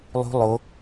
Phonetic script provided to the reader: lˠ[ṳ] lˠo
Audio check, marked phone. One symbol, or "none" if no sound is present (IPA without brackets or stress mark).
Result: ṳ